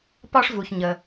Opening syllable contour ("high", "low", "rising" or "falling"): high